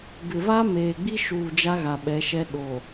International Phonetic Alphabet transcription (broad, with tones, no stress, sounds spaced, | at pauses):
b ɪ˨ β a˦ m eː˨ ɡ͡b i˦ ʃ uː˨ d͡ʒ a˦ ɣ a˨ ɓ ɛ˨˦ ʃ ɛ˦ ɗ o˨